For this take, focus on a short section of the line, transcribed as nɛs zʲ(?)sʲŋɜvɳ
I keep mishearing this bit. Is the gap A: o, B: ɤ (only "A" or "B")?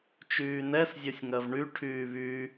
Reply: B